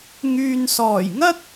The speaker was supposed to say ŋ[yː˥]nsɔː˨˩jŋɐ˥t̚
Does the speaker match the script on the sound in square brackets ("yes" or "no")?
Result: no